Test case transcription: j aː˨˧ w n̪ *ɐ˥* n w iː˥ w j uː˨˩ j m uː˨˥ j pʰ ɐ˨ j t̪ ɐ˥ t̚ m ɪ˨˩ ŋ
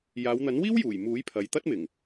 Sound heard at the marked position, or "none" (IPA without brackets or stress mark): ɐ˨˥